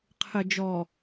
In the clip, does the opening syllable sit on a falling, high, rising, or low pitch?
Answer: low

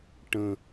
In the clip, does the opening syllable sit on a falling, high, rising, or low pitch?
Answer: falling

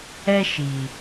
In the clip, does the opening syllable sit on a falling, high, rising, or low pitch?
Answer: high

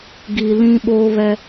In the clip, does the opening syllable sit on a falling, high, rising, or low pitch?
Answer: low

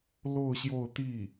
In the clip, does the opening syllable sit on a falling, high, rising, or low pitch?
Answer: falling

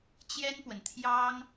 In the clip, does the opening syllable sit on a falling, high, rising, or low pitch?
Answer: high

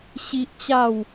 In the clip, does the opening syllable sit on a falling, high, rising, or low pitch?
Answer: high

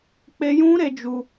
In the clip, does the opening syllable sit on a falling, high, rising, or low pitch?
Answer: high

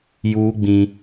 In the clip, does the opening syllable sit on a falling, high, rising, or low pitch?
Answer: high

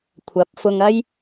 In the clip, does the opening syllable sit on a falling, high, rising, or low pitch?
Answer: rising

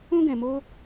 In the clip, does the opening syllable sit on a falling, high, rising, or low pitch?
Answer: high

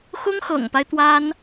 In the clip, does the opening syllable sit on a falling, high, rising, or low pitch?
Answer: high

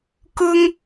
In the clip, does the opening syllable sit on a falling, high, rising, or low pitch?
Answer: high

